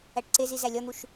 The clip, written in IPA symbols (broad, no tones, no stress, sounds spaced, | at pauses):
æ ʈ ǀ e z i z æ lʲ ɒ n̪ u ʃ